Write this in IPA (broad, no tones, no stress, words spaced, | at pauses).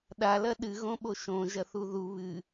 ɗalɐ ɗɨɣõɓo ʃõʒɐθu ðu βɨ